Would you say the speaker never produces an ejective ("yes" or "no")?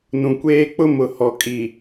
no